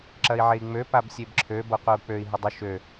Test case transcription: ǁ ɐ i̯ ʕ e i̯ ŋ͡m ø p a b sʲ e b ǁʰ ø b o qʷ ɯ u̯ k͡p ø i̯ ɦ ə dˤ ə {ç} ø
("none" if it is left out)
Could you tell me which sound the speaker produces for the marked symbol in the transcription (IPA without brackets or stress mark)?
ʃ